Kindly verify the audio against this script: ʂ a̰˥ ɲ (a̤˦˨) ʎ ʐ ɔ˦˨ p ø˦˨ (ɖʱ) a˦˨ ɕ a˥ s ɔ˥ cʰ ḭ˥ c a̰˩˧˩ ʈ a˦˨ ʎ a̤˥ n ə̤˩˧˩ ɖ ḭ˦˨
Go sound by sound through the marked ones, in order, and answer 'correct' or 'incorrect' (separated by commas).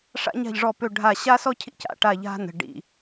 correct, correct